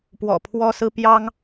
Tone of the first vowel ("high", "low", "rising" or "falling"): low